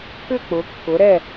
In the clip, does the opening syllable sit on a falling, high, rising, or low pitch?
falling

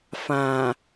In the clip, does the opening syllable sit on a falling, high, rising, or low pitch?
low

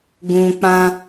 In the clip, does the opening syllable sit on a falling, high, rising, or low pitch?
low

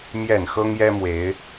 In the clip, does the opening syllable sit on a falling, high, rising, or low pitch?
low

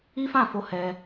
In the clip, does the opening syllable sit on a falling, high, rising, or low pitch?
high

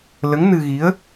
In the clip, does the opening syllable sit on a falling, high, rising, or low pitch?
rising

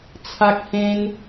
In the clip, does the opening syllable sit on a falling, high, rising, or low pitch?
high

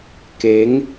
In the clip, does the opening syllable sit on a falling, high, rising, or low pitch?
rising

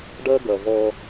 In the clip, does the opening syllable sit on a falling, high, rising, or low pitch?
high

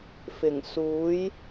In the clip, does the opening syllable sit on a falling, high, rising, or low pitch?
low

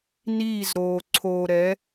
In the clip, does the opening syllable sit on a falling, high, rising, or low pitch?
falling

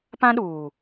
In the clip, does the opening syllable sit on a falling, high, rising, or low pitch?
high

